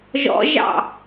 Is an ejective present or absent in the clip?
absent